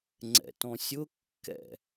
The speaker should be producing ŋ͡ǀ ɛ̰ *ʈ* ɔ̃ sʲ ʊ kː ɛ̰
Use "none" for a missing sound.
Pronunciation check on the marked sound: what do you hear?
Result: t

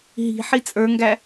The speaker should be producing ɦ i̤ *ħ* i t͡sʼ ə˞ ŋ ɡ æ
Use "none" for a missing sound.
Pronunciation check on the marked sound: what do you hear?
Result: ħ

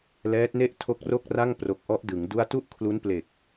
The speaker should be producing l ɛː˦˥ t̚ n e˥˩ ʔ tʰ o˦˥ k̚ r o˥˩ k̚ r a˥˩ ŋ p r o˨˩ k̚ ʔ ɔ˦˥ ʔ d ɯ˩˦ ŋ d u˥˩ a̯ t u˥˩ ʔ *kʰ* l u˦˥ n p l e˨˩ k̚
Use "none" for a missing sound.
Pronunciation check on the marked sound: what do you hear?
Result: kʰ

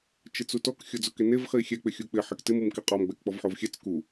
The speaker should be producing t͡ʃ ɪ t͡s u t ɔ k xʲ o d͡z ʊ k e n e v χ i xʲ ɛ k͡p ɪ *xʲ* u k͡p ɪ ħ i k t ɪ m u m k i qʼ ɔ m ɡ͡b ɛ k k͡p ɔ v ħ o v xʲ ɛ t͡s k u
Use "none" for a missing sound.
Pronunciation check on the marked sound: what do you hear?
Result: xʲ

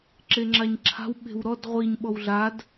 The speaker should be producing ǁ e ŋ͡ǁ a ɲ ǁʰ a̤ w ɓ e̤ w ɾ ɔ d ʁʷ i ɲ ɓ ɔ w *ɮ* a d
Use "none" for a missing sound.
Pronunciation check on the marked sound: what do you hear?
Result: ɮ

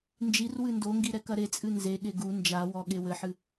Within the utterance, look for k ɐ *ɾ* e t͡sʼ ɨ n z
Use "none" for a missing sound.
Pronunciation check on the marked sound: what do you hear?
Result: ɾ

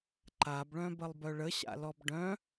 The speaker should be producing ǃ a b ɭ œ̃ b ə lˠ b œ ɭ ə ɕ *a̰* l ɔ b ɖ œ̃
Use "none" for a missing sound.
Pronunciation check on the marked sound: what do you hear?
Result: a̰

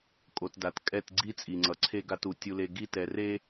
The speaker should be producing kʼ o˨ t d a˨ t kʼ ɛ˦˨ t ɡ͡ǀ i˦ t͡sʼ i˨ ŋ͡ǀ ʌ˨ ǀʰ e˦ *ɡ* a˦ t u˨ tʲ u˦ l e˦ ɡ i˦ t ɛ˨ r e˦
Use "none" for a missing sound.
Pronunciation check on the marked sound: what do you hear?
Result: ɡ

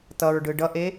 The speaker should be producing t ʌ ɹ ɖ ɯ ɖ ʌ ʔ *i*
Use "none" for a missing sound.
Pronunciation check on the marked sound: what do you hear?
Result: e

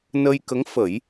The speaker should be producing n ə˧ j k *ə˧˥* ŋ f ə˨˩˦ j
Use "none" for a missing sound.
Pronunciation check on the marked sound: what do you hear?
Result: ə˧˥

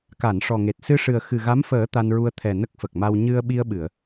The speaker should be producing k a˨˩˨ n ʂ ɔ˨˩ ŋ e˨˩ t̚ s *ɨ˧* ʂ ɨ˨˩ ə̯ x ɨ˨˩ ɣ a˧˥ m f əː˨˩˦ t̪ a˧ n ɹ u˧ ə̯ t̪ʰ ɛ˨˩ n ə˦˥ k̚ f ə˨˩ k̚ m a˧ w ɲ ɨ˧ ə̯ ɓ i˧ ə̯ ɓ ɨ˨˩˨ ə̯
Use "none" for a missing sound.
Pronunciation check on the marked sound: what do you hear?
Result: ɨ˧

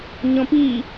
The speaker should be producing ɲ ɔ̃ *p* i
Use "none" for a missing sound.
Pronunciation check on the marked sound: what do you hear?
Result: p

